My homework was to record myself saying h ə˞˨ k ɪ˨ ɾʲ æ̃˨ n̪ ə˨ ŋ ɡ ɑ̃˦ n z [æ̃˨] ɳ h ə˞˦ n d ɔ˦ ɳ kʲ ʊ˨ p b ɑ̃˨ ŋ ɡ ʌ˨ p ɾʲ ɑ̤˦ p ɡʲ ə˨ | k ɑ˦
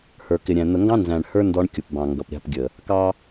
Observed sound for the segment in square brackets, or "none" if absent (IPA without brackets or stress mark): æ̃˨